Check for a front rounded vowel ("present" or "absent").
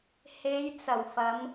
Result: absent